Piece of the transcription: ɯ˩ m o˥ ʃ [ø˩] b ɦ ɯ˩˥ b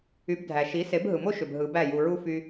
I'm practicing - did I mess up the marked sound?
no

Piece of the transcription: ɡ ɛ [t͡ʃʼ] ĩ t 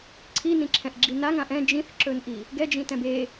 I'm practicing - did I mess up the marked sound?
yes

